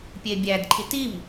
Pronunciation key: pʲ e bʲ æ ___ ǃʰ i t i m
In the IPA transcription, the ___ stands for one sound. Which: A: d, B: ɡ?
A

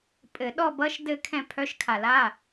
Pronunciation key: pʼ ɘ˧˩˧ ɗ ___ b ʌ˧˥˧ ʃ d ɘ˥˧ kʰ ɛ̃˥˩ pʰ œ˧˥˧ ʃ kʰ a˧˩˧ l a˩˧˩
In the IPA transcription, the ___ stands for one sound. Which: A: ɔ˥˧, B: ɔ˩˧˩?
A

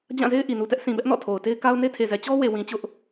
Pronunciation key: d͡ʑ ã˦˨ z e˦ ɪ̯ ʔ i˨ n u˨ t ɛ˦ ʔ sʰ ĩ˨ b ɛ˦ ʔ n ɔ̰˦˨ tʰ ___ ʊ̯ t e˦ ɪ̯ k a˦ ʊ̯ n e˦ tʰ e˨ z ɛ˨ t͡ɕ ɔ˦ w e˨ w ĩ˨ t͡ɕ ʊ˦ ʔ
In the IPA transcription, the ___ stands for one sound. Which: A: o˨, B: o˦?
A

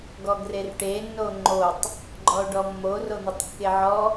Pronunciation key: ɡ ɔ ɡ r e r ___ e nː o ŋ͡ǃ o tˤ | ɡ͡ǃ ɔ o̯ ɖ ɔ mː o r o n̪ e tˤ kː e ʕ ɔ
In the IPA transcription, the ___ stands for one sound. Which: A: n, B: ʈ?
B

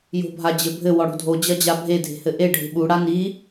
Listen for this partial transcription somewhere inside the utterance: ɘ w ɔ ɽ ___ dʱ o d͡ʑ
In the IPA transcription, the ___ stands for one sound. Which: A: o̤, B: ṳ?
A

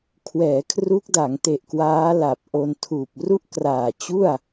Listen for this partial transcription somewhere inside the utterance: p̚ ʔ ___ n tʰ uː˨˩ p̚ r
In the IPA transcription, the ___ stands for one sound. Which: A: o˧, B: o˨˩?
A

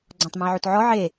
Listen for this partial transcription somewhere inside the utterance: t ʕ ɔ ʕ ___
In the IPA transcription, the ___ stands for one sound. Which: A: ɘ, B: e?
B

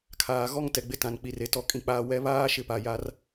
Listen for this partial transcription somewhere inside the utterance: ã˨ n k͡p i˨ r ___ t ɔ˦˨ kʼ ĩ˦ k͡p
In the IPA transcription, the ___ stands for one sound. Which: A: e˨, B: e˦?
A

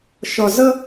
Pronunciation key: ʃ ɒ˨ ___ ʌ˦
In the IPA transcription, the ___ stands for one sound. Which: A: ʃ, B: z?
B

